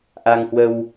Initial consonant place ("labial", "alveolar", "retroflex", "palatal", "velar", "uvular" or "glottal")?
glottal